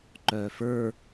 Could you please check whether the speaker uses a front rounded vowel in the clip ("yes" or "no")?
yes